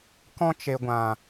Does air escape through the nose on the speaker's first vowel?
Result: yes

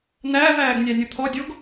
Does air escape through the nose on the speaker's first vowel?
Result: no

